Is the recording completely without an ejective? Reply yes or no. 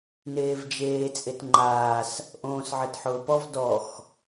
no